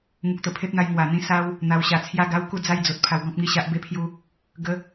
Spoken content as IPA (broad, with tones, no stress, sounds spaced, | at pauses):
ŋ u˨ k̚ t̪ ə˨˩ pʰ e˦ p̚ n̪ a˧ j ŋ w a˨˩ n̪ ĩ˦ s a˦ w | n̪ a˨˩ w ɕ a˨˩ t͡sʰ j a˥˧ ɡ a˦ w k u˥˧ d͡z a˥˧ j d͡z o˨ t̚ pʰ a˧ w ɡ ɔ̃˦ p̚ ŋ i˥˧ ɕ a˦ ʔ b e˦ pʰ j u˦ | ɡ ə˧